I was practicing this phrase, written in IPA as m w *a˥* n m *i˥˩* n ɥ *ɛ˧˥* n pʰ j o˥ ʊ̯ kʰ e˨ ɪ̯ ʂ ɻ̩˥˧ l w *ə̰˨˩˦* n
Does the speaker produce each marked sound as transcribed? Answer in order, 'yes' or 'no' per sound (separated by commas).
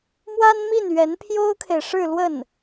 yes, yes, yes, no